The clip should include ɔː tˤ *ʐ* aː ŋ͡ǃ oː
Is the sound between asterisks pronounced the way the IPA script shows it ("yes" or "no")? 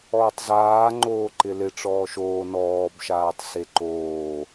no